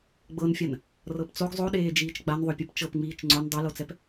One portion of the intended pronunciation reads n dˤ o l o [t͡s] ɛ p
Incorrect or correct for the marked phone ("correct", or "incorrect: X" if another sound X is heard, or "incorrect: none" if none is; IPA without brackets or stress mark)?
correct